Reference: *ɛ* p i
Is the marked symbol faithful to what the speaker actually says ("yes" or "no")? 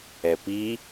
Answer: yes